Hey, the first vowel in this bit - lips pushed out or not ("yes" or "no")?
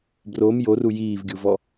yes